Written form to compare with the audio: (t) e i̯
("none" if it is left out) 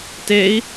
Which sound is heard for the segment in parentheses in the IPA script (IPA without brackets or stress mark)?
t